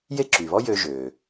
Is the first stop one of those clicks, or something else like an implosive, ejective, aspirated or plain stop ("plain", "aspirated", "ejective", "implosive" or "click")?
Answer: click